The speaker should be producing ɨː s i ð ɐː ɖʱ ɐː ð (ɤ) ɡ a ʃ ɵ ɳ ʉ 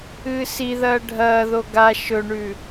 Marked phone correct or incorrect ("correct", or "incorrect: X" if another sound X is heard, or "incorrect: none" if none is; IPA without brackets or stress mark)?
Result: incorrect: o